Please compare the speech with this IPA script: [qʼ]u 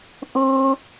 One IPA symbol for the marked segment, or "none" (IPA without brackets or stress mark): ʔ